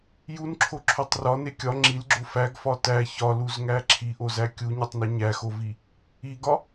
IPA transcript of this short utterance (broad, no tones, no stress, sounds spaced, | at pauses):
j u n ǁʰ o ǁʰ o tˤ r ɒ n e kʲ ɒ ŋ͡ǁ i l ɡ͡ǁ o f æ ɡ f ɒ t æ ç ɒ l u z ŋ æ ǁʰ i ʔ o z æ kʲ u ɲ e tˤ n o ɲ æ x o v i | i ɡ ɒ